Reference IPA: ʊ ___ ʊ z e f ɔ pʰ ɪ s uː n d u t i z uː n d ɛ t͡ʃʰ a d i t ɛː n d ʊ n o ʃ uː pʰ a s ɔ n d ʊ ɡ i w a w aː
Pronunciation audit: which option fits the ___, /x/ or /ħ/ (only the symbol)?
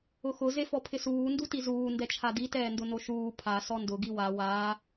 x